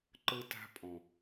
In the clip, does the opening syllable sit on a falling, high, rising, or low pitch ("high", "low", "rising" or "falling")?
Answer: high